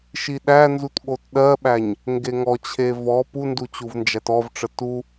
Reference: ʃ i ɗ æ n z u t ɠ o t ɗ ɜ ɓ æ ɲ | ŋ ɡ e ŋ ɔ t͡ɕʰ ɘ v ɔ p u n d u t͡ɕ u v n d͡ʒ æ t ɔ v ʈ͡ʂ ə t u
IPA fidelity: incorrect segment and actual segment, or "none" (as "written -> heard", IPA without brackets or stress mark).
ɘ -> e